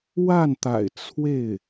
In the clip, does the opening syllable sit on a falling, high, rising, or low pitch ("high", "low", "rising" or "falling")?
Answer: falling